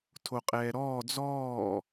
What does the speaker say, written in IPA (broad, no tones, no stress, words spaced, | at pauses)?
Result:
tʰoqʼɛːɾɔː d͡zɔː